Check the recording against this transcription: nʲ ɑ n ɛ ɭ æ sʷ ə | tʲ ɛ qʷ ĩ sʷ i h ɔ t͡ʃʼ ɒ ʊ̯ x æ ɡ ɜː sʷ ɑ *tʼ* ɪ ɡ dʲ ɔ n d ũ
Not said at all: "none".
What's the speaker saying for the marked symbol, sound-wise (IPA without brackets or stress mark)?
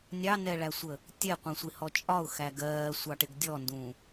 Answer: ʈ